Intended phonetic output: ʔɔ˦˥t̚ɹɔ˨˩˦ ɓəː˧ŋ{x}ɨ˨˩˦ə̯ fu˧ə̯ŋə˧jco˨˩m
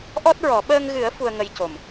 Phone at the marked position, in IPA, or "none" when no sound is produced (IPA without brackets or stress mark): ɣ